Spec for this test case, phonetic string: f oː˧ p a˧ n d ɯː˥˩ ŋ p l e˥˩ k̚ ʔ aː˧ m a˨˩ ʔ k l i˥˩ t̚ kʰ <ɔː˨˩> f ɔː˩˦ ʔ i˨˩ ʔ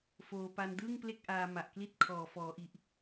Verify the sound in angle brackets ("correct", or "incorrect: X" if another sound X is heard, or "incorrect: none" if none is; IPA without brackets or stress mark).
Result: correct